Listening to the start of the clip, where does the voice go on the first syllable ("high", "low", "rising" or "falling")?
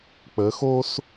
rising